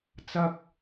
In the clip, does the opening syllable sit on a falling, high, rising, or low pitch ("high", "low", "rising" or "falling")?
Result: high